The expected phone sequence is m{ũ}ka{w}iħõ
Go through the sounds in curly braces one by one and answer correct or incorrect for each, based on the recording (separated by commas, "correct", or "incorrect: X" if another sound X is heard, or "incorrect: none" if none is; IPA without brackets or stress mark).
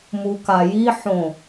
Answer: incorrect: u, incorrect: j